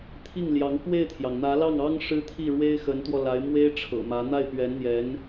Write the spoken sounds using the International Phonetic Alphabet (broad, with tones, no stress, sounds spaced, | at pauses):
t̪ʰ i˥˩ ŋ l j ɑ˧˥ ŋ k w e˥˩ ɪ̯ t̪ʰ j ɑ˩ ŋ n̪ ä˧˥ l ɑ˥˩ ŋ ɑ˥ ŋ ʂ ɻ̩˥ t̪ʰ i˥˩ ɻ w e˥ ɪ̯ x ə˧˥ n t̪ w ɔ˧ l a˧˥ ɪ̯ m w e˥ ɪ̯ ʈ͡ʂʰ ɤ̰˨˩ m ä˧˥ n̪ a˥˩ ɪ̯ p ɥ ɛ˧˥ n n̪ j ɛ˧˥ n